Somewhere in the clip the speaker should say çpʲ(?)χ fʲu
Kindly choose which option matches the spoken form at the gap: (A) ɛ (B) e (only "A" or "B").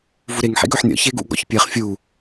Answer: B